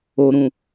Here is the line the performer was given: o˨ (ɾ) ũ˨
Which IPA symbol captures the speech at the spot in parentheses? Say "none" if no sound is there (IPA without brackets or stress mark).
ɾ